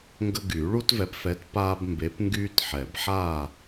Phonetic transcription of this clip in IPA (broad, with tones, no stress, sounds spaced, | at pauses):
ŋ ɡ ə˦ ɡ y˨˩˦ ɭ u˦ t v ɛ˨˥ p f ɛ˨˥ t p aː˦ b m b e˨˥ p ŋ ɡ yː˦ t ħ ɛ˨˩˦ b ħ aː˥˨